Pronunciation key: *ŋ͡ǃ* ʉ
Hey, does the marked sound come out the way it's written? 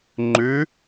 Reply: yes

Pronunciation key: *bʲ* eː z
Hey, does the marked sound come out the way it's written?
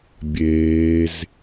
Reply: yes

